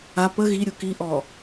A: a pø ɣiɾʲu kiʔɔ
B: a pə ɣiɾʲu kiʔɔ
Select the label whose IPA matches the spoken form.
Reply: B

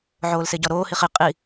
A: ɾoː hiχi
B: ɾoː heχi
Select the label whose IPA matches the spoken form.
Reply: A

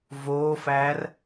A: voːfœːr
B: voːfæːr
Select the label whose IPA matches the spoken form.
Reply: B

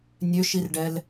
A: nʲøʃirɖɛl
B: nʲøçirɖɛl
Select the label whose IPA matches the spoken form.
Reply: A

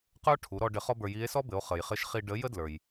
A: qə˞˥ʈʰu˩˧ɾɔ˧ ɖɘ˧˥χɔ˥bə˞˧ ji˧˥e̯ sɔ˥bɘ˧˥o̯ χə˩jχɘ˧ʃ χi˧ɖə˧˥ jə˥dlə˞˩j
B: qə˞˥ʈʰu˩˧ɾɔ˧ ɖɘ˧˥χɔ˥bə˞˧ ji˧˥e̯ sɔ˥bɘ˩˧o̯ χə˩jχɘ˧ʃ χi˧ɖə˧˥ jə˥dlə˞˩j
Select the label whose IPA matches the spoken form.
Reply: B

